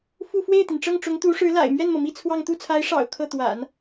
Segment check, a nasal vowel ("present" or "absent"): absent